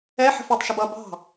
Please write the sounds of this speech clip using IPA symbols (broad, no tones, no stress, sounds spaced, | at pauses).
ɛ ħ ə̤ f ʌ tˤ ʃ ə b ʌ b ɑ̤